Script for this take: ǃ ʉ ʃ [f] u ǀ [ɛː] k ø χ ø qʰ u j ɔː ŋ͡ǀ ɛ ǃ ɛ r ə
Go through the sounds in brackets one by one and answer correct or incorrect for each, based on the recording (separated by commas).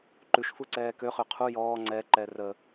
correct, correct